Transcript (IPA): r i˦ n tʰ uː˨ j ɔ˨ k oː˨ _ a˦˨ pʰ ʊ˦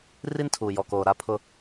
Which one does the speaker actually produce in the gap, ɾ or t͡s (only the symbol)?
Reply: ɾ